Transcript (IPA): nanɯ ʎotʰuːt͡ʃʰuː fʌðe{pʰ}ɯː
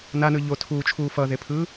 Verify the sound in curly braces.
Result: correct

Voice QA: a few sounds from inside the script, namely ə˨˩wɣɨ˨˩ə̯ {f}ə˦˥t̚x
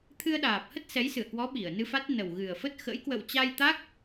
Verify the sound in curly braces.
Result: correct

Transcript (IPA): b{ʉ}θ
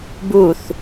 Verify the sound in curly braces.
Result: incorrect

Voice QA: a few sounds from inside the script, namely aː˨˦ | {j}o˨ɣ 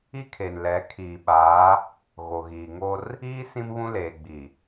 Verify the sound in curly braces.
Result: incorrect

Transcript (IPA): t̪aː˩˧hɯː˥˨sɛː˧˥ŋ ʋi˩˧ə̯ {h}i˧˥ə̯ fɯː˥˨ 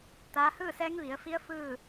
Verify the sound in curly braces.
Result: incorrect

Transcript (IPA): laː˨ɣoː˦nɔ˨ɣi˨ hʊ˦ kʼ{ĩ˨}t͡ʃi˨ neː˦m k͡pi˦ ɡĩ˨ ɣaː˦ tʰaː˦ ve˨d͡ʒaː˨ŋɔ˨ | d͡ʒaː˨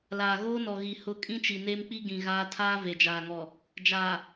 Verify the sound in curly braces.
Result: incorrect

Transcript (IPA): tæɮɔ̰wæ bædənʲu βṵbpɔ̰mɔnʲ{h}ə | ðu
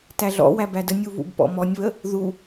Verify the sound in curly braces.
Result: incorrect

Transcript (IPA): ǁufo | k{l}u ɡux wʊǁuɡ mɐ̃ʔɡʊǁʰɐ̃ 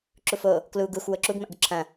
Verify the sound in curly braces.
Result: correct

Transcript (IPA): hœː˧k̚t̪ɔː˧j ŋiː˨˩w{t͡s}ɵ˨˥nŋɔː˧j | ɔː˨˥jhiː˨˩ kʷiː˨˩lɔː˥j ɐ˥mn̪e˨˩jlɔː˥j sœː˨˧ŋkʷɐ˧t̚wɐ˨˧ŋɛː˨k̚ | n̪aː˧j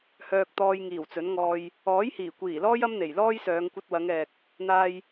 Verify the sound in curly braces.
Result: correct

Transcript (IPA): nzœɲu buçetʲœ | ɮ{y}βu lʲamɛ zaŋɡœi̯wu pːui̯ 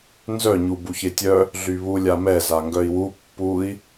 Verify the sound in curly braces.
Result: correct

